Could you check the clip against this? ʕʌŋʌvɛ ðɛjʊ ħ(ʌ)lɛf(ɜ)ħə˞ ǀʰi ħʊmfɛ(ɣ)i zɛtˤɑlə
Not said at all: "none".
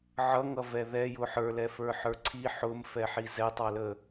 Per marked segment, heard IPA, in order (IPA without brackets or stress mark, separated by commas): ə˞, ə˞, ħ